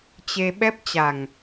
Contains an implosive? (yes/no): yes